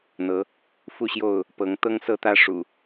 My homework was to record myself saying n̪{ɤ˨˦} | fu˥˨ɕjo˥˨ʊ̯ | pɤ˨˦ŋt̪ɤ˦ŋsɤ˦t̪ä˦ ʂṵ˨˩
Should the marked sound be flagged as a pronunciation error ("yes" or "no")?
no